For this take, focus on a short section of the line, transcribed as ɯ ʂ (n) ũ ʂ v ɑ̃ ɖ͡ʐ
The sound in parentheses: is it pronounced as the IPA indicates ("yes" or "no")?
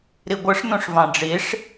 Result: yes